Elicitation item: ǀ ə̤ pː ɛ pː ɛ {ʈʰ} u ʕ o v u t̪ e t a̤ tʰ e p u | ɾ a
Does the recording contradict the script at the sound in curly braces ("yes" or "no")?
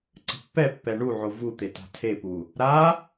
yes